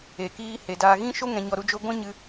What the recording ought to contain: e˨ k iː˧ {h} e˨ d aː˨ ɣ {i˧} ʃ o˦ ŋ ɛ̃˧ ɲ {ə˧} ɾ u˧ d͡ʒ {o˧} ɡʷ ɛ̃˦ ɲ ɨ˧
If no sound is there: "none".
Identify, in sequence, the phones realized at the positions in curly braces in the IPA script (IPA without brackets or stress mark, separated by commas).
h, ĩ˧, ɔ˧, o˧